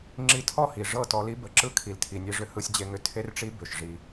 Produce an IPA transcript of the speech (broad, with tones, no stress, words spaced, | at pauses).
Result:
ŋ͡ǁi˧tʰɔ˦˨hi˨ ʐɤ˦˨tɔ˧li˦ bə˨ǁɯ˧ kʰi˨ltʰi˨nʲe˧ʐʏ˧ hɯ˧sʲd͡ʑe˧ŋʏ˧ tʰe˦rʈ͡ʂi˦ bʏ˨ʃ ʐi˧